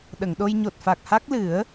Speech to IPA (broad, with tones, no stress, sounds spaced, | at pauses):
ɗ ə˨˩˨ ŋ ɗ o˧ j ɲ o˨˩ t̚ f a˨˩ k̚ h a˦˥ k̚ l ɨ˨˩˦ ə̯